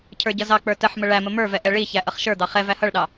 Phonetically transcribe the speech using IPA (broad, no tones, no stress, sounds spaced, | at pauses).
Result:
cʰ ə˞ ɟ ʌ z ɑ k͡p ə˞ t ə ħ m ə ɭ æ m ə m ə˞ v ɛ ʔ ɛ ɭ i ç æ ʔ ʌ χ ʃ ə˞ d̪ ɑ χ ɛ v æ h ʌ ɭ ɗ ɑ